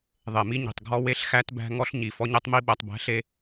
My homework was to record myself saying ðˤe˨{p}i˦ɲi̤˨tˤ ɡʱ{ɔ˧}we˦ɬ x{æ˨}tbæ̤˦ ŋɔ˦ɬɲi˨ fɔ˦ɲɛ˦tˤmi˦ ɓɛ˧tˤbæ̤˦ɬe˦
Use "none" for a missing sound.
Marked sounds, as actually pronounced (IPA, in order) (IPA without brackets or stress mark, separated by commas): m, ɔ˦, æ˦